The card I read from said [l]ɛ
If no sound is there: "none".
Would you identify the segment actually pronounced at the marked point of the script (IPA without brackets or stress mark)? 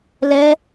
l